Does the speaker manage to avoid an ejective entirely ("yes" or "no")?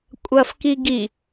no